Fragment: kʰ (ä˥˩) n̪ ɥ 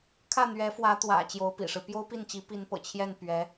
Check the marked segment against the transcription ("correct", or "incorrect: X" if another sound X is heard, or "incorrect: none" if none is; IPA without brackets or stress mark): correct